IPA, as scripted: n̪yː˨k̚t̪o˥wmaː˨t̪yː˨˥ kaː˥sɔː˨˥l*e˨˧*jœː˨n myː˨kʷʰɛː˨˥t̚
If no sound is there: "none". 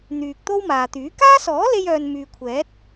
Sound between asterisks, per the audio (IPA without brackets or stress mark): e˧